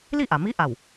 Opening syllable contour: falling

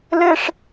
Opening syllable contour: high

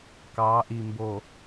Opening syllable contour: rising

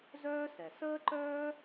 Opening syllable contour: high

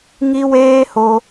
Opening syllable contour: high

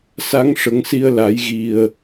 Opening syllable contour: rising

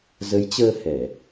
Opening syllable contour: rising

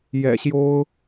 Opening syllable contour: low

